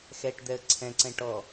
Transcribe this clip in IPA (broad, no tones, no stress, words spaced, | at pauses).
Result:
xɛʈd̪ɛə̯ ǀʰɛ̃ǀɛ̃ ʈɔ